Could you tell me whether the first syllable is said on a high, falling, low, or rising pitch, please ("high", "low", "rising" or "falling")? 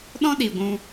high